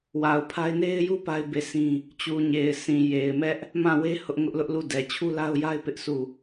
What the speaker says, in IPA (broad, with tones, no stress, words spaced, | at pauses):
wa˨ʊ̯pʰa˦ɪ̯ ne˦ɪ̯ju˦ pa˦ɪ̯ be˦˨sĩ˦ | t͡ɕu˨ɲe˨ɪ̯sʰĩ˨ je˨ɪ̯mɛ˦ʔ | mã˦˨we˦ hʊ˦ʔŋʊ˦ʔ lʊ˦ʔlu˦˨dɛ˨ t͡ɕʰu˦la˦ʊ̯ja˦ɪ̯ pɪ˦ʔsu˦˨